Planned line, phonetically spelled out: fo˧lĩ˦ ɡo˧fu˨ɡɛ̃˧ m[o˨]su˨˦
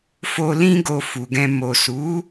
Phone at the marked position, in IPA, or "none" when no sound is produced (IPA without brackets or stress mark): o˨